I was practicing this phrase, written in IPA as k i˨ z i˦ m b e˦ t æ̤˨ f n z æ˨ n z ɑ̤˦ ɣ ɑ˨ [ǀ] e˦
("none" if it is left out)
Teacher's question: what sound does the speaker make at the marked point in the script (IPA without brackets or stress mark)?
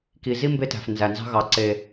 ǀ